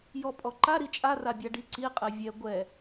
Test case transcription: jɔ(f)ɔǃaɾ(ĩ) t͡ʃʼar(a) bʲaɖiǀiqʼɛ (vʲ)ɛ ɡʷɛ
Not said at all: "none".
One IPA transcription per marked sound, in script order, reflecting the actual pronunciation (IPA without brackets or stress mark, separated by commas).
pʼ, i, a, vʲ